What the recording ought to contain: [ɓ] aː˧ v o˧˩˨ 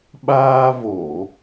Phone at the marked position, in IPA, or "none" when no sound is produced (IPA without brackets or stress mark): ɓ